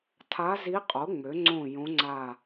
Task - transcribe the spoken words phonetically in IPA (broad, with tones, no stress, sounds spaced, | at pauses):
tʰ a˧˥ z i˧˥ qʼ o˩˥ ŋ͡m ø˩˥ ŋ͡ǀ õ˦˨ j õ˧˥ ŋ͡ǀ a˦˨